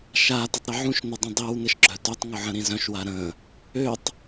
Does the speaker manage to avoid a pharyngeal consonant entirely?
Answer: no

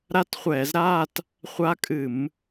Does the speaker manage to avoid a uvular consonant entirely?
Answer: no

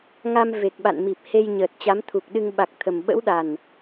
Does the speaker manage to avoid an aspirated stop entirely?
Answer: no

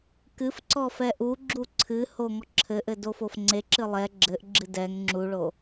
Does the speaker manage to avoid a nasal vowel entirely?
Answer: yes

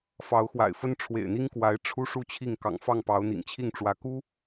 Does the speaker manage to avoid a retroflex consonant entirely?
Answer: no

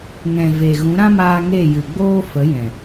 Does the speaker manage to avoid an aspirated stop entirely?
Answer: yes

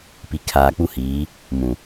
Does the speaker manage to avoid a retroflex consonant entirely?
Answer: yes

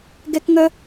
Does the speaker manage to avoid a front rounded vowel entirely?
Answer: no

